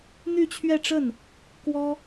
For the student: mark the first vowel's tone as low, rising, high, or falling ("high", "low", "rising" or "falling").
falling